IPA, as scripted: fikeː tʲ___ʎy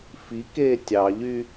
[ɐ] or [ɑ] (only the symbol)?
ɑ